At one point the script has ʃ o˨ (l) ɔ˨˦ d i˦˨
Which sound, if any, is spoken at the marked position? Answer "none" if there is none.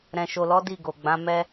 l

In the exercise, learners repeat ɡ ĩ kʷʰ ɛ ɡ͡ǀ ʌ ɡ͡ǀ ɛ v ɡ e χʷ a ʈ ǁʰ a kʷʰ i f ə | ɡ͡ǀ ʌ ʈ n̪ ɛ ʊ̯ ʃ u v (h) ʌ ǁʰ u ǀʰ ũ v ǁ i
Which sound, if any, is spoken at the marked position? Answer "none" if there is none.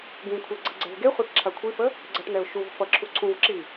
f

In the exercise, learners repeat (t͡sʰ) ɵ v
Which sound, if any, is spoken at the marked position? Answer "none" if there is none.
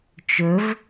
t͡ʃ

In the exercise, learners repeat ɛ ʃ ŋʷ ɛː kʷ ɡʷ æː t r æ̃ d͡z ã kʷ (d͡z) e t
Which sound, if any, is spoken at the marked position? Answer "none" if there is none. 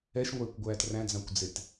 d͡z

